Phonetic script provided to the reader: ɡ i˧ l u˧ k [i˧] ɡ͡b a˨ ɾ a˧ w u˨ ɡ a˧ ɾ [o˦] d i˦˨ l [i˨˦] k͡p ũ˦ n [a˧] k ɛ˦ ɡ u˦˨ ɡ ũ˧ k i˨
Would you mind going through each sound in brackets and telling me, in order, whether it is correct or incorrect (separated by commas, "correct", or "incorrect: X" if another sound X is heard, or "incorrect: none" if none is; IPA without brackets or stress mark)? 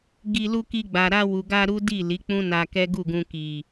correct, incorrect: u˦, correct, correct